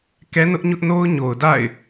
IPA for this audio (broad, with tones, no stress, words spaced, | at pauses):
kɛ˦ nʊ˦ʔɲʊ˦ʔno˦ʊ̯ ɲo˨ʊ̯da̰˦˨ɪ̯